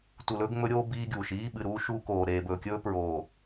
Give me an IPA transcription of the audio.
tu˨lɵː˦ɡŋ͡mɵ˦ɾʲoː˦ biː˦ɡʲuː˨ʃ iː˦ɓɨ˨ɾuː˦ ʃuː˦koː˨ ɾeː˨bɵː˨kʲɵː˦ pɹoː˨

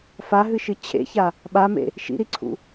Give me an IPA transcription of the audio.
faɦɨʃɨ t͡ɕʰḛça | ɓamḛ | ʃḭɾiǀʰṵ

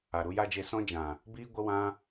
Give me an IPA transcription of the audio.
a˨ɾu˧ja˦d͡ʒe˦˨ sɔ̃˦d͡ʒã˨ | biː˦ɡʷə˦ wã˧

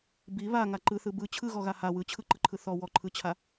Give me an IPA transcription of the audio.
bi βaŋa ǃɯθɯ bɯ t͡ɕʰɯɣɔɣa ha wɯt͡ɕʰɯǃɯǃʰɯ θɔ wɔǃʰɯt͡ɕʰa

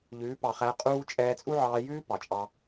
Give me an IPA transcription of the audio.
ʎʉː˨˦ pɑ˨χæ˧qʼuː˦ t͡ʃʼɛː˧t͡sʼu˦ʕɑː˧jʉː˦ pɑ˨t͡ʃʼɑ˦

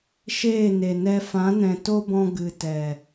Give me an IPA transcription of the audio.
ʃeː˦˨ne˨nɛ˧ fã˨˦nɛ̃˨to˦bɔ̃˧ ɡɨ˨tɛ˨

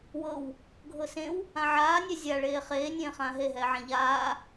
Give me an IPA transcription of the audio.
wɤw | ɡʱɤsẽw | ãʕaːnʲɛ zʲaɭeː χeːnʲẽː χãːɦeɦɛːʕã ʎaː

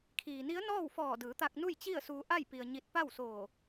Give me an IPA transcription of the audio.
kʰiː˩ni˧˥ə̯ nɔː˥˨wfɔː˧˩dɯː˩˧t̪a˧k̚ nu˥˨jt͡ɕi˥˨ə̯suː˧ ʔa˥˨j pi˧ə̯ɲi˧˥t̚ pa˥˨wsoː˧˩

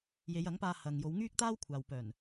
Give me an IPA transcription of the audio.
je˨˧jɐ˨˥ŋpaː˧ hɐ˨ŋjo˨˧w ŋyː˥k̚t̪aː˥wkʷʰaː˨w pœː˨˩n

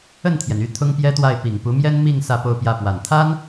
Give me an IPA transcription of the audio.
ə˥˩nt̪ʰjɛ˩ny˥˩ t̪ʰʊ˥ŋpjɛ˥t̪wa˥˩ɪ̯ pi˨˩ŋpu˧˥mjɛ˥n mi˥˧ŋ sä˥˧po˥˧ʊ̯pjä˥˩ pwa˨˩nt̪ʰa˥n

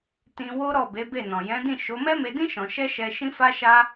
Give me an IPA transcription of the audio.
tĩ˧wo˦ɾɔ˦˨ be˨˦be˦˨nɔ̃˨ jɛ̃˨˦dĩ˦˨ʃo˨˦ mɛ˦me˧dĩ˦ ʃɔ̃˧ ʃɛ˦ʃɛ˧ ʃĩ˦fa˦ʃa˦

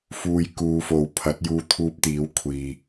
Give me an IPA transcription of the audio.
fuː˨j kuː˨˧fo˨w pʰɐ˨˥t̚juː˧t̪ʰuː˧p̚t̪iː˨˥w kʷʰiː˨

